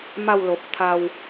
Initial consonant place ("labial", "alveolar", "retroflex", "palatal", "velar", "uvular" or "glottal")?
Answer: labial